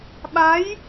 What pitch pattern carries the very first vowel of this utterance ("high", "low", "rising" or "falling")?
rising